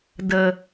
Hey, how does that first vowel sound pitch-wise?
low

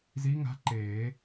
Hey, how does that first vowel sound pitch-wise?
rising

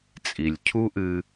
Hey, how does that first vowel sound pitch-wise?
low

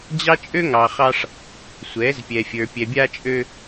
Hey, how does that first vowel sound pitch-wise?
high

